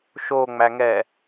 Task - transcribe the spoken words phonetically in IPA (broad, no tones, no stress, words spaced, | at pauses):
ʃoːŋ͡mæŋɛː